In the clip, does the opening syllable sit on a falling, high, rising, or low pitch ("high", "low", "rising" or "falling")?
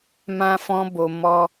high